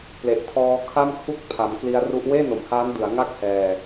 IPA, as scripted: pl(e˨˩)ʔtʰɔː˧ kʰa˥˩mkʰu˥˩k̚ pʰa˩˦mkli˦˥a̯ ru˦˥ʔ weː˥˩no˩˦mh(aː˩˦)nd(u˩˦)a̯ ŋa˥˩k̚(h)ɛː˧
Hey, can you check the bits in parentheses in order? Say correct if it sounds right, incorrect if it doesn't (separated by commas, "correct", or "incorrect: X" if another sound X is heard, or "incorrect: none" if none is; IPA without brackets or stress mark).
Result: correct, incorrect: aː˦˥, incorrect: ɯ˩˦, correct